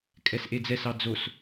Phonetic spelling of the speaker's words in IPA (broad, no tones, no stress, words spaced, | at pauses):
kʼɛsʔed͡zɛsɑ d͡zos